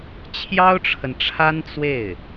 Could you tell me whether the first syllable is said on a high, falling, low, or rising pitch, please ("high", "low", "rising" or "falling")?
high